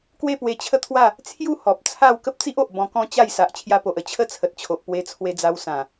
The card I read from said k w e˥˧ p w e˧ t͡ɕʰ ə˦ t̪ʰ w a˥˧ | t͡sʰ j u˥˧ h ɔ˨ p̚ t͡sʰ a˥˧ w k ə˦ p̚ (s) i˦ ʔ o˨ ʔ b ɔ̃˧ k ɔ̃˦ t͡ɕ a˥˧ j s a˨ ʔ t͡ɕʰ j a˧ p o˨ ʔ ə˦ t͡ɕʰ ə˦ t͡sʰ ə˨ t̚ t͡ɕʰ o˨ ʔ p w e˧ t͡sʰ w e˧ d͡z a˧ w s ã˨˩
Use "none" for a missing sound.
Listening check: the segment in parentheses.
t͡s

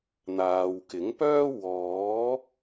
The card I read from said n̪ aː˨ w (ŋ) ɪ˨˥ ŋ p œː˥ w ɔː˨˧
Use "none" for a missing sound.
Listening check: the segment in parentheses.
k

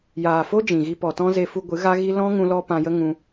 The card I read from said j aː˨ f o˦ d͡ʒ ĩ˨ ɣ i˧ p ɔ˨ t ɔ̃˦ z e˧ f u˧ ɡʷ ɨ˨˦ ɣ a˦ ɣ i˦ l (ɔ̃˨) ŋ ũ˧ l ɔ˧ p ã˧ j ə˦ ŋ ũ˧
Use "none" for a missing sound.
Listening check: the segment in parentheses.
ɔ̃˦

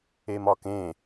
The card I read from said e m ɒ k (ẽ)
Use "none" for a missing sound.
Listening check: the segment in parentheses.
ẽ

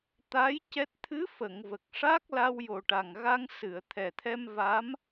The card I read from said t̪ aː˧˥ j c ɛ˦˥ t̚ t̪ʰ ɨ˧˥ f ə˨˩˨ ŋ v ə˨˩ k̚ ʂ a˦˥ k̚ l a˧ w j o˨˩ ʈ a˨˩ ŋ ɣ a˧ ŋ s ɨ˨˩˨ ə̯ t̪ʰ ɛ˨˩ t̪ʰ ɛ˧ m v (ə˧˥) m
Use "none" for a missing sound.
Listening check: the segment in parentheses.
a˧˥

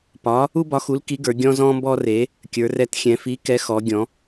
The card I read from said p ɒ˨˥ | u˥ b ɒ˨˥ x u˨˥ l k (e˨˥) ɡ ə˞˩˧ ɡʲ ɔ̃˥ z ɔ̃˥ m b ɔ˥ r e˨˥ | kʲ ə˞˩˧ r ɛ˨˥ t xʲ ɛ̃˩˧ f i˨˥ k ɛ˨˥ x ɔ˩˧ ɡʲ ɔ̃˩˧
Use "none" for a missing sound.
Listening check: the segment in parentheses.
i˨˥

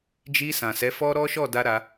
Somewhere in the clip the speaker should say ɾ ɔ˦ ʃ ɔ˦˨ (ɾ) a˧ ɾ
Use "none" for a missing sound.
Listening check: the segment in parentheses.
d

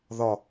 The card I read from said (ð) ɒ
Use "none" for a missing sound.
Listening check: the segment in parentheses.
ð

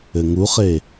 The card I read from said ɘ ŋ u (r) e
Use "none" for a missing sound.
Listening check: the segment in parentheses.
χ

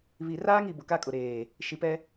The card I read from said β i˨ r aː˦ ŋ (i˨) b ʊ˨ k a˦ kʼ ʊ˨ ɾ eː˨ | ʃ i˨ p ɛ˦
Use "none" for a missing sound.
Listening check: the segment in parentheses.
i˨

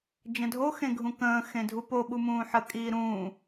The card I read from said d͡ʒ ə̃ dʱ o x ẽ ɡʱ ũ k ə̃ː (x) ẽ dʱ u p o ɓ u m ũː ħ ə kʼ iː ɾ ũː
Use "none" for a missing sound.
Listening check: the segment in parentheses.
x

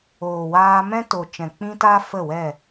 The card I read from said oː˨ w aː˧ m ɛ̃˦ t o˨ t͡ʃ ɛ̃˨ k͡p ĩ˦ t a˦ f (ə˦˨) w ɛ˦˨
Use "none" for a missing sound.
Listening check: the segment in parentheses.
ə˦˨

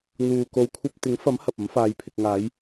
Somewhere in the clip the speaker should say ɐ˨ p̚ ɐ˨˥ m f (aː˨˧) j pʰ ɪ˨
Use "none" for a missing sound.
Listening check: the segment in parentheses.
aː˨˧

